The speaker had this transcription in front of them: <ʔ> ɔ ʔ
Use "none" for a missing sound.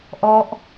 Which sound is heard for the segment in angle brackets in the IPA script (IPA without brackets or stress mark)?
ʔ